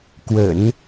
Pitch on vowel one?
low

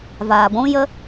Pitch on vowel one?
low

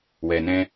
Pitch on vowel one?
low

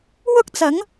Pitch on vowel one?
high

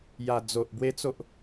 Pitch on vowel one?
low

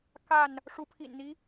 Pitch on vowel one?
falling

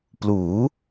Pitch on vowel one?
rising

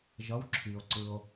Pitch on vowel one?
rising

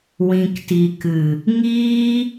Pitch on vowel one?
low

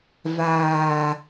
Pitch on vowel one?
low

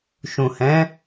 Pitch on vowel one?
low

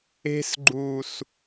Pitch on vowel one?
high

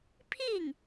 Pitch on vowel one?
falling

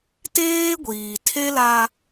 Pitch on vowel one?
high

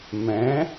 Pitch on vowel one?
rising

